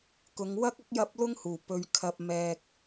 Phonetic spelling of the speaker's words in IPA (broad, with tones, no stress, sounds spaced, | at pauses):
k ʊ˨˧ ŋ w ɐ˥ k̚ ɐ˥ k̚ j ɐ˥ p̚ l ʊ˥ ŋ h uː˨˩ p ɵ˨ ɥ kʰ ɐ˧ p̚ m ɛː˧ k̚